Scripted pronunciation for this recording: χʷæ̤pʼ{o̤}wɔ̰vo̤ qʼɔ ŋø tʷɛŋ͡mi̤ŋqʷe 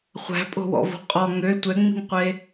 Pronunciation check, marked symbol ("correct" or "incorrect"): correct